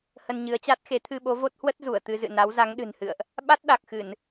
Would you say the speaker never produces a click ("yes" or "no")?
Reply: yes